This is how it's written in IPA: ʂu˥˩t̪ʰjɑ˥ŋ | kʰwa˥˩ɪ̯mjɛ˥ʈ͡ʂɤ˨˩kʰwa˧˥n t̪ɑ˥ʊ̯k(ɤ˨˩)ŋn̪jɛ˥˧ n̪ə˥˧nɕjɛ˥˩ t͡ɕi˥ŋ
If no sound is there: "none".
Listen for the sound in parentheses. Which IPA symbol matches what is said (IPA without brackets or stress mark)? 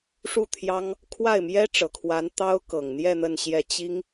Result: ɤ˨˩